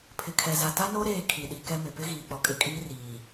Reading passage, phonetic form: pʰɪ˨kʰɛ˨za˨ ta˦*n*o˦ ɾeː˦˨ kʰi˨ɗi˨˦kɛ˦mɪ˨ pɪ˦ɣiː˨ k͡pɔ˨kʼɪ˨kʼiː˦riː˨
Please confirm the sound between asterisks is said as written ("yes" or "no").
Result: yes